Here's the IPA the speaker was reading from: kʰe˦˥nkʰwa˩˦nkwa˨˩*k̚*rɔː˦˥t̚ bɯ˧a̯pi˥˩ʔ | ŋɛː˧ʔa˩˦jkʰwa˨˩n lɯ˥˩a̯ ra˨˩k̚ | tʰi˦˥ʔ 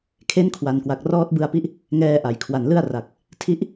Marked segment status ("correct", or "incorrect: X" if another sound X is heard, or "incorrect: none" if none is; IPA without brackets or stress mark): correct